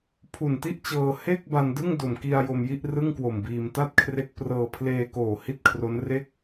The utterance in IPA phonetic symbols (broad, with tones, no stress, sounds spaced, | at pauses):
pʰ u˨˩ n t i˥˩ ʔ t͡ɕ ɤː˧ h e˥˩ k̚ b a˧ n d ɯ˥˩ ŋ d o˨˩ m k i˧ a̯ j o˧ m j i˥˩ ʔ r ɯ˥˩ ŋ k w o˨˩ m b iː˧ m t a˥˩ t̚ kʰ r e˦˥ k̚ p r ɤː˧ pʰ l eː˧ k oː˨˩ h i˥˩ t̚ kʰ r o˦˥ n r e˥˩ k̚